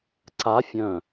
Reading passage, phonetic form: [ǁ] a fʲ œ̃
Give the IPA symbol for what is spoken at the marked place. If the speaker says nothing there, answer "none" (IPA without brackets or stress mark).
ǀ